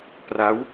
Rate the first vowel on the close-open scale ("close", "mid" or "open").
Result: open